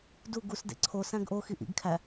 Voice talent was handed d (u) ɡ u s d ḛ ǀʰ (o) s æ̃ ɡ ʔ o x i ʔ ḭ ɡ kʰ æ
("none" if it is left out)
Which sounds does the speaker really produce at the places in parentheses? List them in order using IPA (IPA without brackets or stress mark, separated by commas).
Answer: u, o